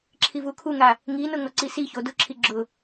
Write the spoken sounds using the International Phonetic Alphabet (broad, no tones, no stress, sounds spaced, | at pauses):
ǁʰ i v u kʰ u ŋ a | ŋ i n ʊ ŋ ɔ ǀ i s i ç o d ʊ ǁʰ i ɡ͡ǁ ʊ